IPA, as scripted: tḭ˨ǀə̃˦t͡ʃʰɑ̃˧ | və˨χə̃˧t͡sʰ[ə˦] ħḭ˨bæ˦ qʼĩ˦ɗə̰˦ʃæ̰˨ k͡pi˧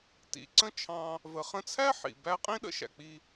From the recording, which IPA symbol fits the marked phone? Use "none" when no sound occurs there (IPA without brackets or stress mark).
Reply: æ˦